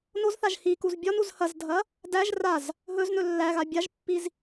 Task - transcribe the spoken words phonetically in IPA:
nozθaʒ hikuz bʲɒnuz hɐzdʱɐ | dæʒ raz | ɦɵz nɵlːæɣa bʲaʒpːiz

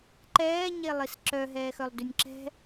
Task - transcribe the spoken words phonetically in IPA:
ǃɛː ɲelˠisǁœ ɦɛːxœlˠdynʲǁɛ̤

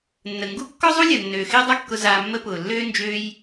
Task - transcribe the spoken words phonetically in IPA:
nːə˨ŋɡu˦ kːɔ˦zˤu˦lʲɐ˨ nːøː˨xɪː˦dˤa˦kːʊ˧ zaː˧mːə˦ pʊː˨lːøː˦ nd͡ʒø˧j

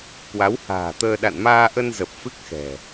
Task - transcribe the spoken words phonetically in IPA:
kwa˨˦wha̤ː˨˩t̪əː˧ ɗa̰˧˨nmaː˧ʔə˧n zə˨˩p̚ fɨ˦˥k̚xɛ̤˨˩

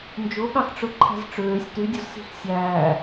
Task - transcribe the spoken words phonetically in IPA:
nd͡ʒoɠɑxʈ͡ʂɵ ǃʰæ̤zʈ͡ʂøːsʲ ty dʲozsi̤x sʲæː

